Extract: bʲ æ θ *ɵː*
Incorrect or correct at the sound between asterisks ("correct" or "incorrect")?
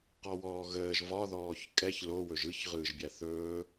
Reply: correct